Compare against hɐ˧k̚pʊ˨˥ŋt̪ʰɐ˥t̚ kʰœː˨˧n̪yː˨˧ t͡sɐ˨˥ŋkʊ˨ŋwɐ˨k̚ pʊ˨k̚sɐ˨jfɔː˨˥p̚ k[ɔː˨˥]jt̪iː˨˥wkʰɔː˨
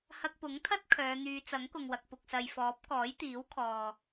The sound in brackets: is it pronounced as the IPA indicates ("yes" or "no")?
yes